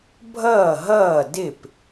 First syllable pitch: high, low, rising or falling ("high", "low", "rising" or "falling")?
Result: falling